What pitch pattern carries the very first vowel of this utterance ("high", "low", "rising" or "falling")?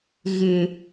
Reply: low